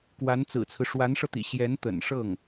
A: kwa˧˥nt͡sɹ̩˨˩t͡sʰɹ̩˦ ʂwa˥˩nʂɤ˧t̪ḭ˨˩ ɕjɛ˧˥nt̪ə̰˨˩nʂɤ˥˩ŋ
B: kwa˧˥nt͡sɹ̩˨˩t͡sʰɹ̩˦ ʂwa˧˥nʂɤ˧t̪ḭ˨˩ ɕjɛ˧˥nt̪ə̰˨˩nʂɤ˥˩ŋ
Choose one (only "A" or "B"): B